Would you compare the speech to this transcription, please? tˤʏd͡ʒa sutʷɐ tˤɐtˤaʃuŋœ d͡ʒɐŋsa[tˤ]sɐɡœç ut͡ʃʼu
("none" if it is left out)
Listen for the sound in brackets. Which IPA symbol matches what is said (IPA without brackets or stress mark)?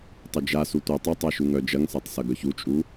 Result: tˤ